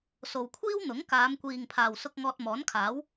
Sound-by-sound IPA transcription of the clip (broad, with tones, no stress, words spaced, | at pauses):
so˨wkʷʰiː˥wn̪ʊ˨˥ŋ kaː˨˧mkʷiː˨ŋ pʰaː˨wsʊ˧k̚ ŋɔː˧t̚mɔː˨˥nkʰaː˨˥w